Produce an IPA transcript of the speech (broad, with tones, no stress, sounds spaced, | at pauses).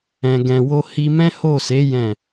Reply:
ɛ̃˨ ɡ ɛ̃˨ w o˧ h i˧ m ɛ̃˦ h o˦˨ s e˨˦ j ɛ̃˦˨